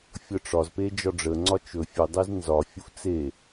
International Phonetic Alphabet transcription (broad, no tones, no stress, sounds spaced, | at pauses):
fʲ ɤ ʈ͡ʂ ɒ z p e d͡ʒ ɒ ɖ͡ʐ ə ŋ͡ǀ ɒ t͡ʃ ɵ fʲ ɵ dˤ e z n z ɒ fʲ u f t͡s e